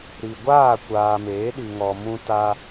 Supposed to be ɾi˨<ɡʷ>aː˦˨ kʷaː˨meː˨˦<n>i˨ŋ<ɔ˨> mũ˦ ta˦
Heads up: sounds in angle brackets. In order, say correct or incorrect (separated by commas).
correct, incorrect, correct